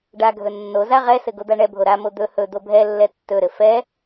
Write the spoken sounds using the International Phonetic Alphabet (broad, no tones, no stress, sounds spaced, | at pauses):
ɖ a ɡʱ ɵ nː o z a ʁ ɛ s ɘ ɡ o d̪ a ɳ ɛ bʱ o ɾ a m o d̪ ɵ h ɵ d̪ o bʱ ɛ lː ɛ tː ɵ ɾ ɘ f ɛ